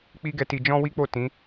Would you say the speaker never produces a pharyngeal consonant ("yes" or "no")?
yes